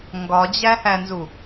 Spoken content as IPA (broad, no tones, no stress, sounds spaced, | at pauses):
ŋ ɡ ɒ d͡ʑ æ h æ n z u